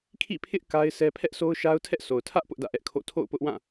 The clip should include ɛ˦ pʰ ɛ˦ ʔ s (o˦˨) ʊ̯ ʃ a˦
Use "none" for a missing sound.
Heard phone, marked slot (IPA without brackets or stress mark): o˦